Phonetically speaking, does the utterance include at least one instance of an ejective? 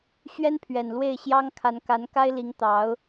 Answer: no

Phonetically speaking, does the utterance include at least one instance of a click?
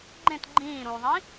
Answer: yes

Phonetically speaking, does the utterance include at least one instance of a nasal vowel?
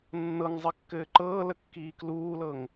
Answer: no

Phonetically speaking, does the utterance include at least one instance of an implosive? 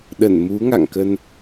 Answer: yes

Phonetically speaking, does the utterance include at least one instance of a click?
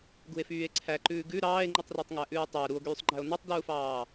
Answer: yes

